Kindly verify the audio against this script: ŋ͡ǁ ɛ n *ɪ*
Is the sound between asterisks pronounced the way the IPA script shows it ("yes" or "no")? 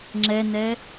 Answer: no